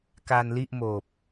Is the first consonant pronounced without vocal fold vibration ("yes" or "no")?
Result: yes